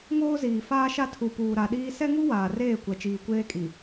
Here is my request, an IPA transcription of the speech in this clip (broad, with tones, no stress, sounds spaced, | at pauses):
ŋ oː˦ z iː˨ f aː˦ ʃ a˦ tʰ u˨ p uː˨ ɾ a˨ ɗ iː˦ s ɛ˦ ŋ u˦ w aː˨ r eː˦˨ kʷ ɛ˨ t͡ʃ iː˨ kʷ eː˦ kʼ i˨